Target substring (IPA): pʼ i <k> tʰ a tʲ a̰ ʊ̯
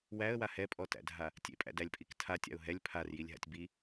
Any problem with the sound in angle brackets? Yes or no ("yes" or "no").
no